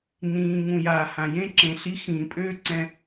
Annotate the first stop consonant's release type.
click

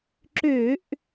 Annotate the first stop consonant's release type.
click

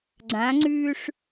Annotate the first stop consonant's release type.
click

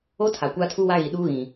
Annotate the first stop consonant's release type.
aspirated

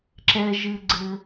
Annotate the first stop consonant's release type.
click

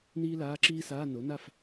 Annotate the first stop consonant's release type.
click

